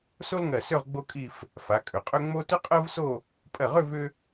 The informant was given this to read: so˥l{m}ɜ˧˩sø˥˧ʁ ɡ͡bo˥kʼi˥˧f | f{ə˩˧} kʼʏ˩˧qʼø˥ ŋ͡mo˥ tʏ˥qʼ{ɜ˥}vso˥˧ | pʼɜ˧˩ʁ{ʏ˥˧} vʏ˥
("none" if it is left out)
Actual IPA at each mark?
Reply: ŋ, a˩˧, ɜ˥, ʏ˥˧

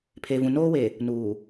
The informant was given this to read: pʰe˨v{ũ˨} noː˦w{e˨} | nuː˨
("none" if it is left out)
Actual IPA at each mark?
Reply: ũ˨, e˨

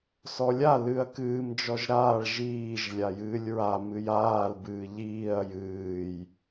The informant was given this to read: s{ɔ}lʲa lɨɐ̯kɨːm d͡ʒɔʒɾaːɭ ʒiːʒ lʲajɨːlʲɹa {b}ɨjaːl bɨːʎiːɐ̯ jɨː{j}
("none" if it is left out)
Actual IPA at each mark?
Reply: ɔ, m, j

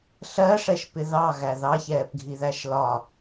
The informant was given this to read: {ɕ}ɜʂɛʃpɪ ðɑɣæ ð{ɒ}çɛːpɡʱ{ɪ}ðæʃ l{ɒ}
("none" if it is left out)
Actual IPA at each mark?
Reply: ɬ, ɑ, i, ɒ

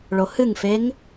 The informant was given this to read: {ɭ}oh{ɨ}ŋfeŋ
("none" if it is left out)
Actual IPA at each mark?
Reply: ɭ, ɨ

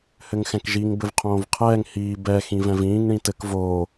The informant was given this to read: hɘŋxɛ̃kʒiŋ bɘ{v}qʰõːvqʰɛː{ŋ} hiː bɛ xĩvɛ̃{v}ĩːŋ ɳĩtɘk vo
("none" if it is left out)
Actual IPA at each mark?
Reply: v, ŋ, v

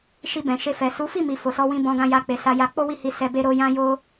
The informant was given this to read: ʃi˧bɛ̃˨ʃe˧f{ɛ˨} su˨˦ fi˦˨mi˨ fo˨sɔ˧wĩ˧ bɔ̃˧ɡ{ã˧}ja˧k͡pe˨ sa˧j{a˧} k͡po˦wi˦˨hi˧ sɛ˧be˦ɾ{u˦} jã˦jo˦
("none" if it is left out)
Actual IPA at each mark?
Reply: ɛ˨, ã˧, a˧, o˦

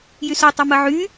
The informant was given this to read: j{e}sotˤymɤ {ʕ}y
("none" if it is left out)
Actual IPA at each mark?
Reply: y, ʕ

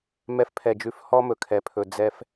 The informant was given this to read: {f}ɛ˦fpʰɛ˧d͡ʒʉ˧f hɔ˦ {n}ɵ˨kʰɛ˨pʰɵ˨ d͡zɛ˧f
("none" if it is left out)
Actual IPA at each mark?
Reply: m, m

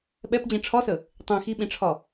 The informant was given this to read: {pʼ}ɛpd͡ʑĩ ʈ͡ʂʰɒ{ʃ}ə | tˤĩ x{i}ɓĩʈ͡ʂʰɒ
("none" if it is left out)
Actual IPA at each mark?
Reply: ɓ, s, i

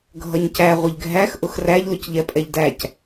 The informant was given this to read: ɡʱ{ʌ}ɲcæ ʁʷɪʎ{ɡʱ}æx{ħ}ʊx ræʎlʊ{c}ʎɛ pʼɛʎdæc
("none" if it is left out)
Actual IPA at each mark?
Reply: ʌ, ɡʱ, ʔ, c

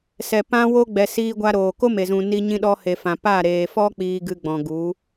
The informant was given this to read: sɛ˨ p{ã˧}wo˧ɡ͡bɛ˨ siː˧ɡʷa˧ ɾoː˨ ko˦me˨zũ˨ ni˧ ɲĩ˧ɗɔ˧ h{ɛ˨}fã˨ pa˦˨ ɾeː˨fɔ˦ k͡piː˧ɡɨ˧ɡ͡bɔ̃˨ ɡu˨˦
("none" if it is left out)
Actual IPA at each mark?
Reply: ã˧, e˨

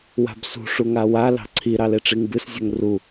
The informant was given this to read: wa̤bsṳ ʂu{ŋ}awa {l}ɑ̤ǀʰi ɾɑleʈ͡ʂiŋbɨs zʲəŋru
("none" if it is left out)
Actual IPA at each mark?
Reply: ŋ, l

